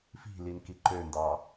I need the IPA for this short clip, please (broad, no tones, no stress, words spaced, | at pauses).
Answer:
fi̤lin kiǃøndɑ